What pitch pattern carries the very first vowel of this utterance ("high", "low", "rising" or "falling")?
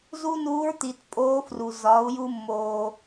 high